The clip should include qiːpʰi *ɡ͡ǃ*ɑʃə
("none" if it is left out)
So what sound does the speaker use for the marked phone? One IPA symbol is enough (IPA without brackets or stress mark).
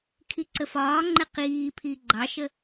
ɡ͡ǃ